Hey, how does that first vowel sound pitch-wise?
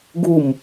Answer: falling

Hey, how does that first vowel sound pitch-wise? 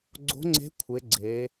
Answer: rising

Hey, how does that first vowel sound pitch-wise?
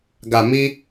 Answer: low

